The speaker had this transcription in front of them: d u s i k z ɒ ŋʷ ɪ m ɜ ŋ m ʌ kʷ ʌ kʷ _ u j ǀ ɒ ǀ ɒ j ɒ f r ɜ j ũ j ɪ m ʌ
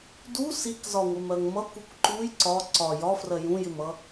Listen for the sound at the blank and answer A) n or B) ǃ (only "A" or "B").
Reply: B